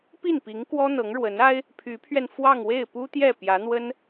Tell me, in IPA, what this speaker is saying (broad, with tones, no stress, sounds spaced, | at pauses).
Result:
p i˥˩ n p i˧˥ ŋ k w ɔ˥ n̪ ɤ˧˥ ŋ ɻ w ə˧˥ n a˥ ɪ̯ | pʰ y˧˥ pʰ ɥ ɛ˧ n f w ɑ˥˧ ŋ w e˥˩ ɪ̯ p u˥ t̪ j ɛ˥˩ p j ä˧˥ n̪ w ə˥ n